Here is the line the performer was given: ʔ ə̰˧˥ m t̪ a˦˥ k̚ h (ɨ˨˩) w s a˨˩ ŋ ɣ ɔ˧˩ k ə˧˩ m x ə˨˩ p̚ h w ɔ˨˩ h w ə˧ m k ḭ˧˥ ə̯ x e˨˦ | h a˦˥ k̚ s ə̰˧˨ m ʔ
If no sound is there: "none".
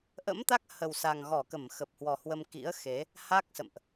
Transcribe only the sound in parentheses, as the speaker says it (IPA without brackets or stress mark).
ə˨˩